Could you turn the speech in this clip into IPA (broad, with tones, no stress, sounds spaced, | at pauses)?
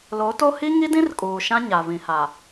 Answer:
l o˨˦ t o˦ h i˦ ŋ i˦ d ĩ˦ r kʼ uː˨ ʃ ã˦ ɲ a˨ v ĩ˨ h a˨